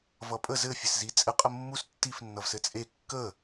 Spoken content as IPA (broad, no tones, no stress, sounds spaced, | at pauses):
v ʌ pʼ ə z ɘ fʲ ɘ s z i t͡sʼ ɘ qʼ ə mː u s tː i f nː ʌ v s ɘ t͡sʼ e kː ə